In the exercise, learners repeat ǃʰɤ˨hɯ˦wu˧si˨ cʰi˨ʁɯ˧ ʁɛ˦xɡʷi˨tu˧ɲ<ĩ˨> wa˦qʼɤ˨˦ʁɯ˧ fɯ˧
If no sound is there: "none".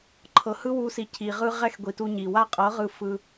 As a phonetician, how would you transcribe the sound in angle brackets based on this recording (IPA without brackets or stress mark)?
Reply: i˨